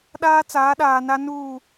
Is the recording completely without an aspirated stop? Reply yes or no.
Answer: yes